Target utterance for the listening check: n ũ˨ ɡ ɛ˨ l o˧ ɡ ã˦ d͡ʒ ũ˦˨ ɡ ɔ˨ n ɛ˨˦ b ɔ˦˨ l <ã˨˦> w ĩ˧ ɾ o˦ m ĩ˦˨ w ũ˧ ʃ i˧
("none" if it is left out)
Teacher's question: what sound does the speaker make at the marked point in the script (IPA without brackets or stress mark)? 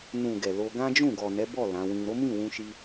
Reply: ã˨˦